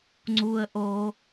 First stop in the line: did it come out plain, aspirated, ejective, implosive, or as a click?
click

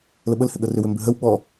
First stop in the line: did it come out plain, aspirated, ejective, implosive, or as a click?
implosive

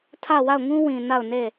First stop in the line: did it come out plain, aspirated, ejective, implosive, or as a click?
aspirated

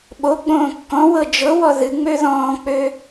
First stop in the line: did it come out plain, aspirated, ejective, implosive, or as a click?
implosive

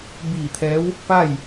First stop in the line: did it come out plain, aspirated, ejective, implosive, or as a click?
plain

